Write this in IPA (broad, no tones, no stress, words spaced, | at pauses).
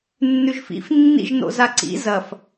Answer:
nːʉʒfḭf nːḭʒno̰zaǀḭ zɐf